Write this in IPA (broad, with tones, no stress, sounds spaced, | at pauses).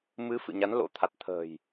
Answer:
m ɨ˨˦ f ɨ̰˧˨ ɲ a˨˦ n l o̰˧˥ t̪ʰ a˨˩ t̚ t̪ʰ ə̤ː˨˩ j